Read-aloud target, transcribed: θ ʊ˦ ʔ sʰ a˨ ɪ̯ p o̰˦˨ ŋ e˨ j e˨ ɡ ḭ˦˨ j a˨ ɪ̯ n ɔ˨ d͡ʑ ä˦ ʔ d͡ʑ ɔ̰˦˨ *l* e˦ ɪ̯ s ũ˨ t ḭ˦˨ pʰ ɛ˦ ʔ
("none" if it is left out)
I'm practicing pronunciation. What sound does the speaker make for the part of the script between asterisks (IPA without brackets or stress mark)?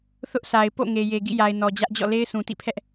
l